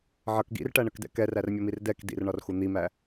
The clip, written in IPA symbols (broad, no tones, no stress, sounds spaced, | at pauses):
ʕ ʌ k ɡ ḭ r ʈ æ ɳ ə k d ɛ̰ k ɛ r æ r mʲ ʌ m i r d ɛ k d ḭ r ɳ ɒ r x u n̪ i m æ